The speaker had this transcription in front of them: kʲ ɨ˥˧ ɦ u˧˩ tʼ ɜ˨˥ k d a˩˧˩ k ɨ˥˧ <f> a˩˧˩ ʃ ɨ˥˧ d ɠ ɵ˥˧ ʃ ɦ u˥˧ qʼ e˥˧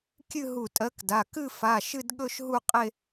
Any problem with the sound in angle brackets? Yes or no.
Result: no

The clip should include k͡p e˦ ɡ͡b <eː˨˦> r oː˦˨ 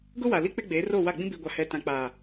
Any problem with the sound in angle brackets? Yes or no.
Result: no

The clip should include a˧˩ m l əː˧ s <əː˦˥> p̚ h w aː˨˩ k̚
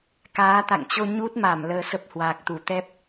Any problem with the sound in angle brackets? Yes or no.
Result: yes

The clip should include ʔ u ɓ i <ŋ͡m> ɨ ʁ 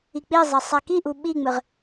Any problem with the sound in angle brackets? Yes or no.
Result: no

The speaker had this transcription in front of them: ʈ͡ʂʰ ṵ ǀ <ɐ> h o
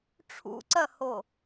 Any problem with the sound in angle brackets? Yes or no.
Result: no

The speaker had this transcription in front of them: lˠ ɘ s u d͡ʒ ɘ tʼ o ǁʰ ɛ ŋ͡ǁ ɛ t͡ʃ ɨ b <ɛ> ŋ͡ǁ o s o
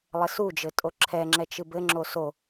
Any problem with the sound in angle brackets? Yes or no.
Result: yes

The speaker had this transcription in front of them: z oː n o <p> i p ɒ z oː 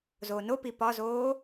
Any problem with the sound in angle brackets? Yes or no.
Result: no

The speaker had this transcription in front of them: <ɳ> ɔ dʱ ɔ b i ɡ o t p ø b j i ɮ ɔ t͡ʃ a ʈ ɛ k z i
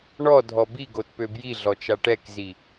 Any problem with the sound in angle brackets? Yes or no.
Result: no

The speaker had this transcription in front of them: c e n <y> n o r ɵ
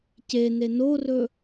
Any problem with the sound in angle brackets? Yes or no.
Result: yes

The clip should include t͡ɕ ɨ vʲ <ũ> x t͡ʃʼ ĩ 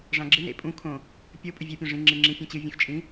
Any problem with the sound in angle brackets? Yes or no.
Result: no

